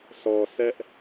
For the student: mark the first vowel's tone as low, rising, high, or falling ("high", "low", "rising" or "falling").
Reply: low